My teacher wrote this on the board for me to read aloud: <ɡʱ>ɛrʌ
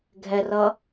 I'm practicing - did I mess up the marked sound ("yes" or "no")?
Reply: no